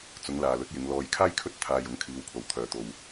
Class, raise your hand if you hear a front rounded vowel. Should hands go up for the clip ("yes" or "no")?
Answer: yes